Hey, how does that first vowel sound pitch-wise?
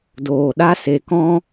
low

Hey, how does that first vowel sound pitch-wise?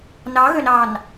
rising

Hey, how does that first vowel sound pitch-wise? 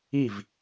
falling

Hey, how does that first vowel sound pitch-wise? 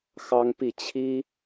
high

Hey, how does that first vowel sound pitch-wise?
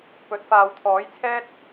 rising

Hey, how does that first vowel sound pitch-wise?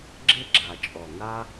high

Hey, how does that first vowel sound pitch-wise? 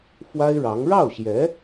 high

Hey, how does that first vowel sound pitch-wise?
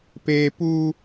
high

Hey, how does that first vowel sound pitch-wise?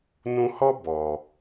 high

